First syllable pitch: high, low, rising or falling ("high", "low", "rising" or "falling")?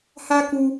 high